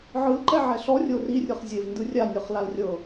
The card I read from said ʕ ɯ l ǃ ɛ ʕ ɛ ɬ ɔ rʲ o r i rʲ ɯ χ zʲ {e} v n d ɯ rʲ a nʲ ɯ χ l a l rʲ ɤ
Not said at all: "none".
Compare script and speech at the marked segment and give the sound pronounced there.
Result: e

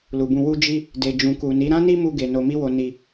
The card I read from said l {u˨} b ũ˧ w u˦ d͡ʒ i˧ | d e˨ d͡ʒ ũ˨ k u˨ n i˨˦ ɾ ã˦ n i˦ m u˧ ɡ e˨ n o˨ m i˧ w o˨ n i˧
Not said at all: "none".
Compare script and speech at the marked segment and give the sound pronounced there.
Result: u˨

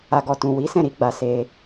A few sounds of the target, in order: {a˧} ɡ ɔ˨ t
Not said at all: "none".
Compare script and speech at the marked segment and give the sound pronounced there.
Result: a˨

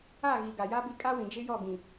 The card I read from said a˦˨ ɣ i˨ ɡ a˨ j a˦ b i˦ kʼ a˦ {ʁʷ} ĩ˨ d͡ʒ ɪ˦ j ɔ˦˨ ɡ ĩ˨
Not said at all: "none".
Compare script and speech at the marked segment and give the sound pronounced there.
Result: w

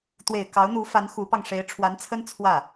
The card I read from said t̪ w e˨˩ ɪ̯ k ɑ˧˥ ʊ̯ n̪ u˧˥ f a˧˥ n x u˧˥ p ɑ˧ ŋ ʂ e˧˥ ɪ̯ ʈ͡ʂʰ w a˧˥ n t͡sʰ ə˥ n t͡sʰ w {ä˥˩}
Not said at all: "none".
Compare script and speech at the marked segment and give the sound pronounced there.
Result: ä˥˩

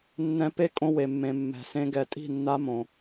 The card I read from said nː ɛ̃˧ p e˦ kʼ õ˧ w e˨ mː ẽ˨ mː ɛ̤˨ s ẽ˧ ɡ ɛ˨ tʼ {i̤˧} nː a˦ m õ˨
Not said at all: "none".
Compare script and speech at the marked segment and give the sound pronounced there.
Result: i̤˦˨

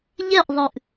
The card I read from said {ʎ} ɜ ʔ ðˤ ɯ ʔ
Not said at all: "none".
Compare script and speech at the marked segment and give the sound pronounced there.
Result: ʎ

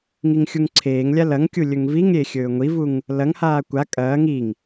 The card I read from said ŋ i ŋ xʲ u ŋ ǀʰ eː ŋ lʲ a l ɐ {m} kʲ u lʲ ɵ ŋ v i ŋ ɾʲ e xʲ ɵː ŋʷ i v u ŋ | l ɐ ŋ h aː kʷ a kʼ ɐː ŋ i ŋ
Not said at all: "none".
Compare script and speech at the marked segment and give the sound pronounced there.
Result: ŋ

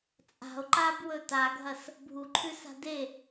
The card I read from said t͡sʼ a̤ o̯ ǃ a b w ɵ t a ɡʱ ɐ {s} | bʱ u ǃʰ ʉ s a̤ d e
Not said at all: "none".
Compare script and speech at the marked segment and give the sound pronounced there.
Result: s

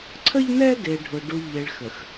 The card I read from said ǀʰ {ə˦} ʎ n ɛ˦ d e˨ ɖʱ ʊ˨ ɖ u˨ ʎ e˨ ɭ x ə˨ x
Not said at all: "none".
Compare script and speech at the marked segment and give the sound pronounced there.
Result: ə˦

